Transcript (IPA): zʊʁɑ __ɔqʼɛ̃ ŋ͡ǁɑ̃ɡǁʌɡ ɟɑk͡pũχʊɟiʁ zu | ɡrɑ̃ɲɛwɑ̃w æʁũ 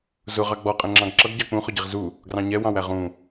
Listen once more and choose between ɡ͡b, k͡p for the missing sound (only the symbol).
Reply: ɡ͡b